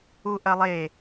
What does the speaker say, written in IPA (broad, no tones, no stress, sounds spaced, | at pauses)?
u ʔ ɐ lˠ e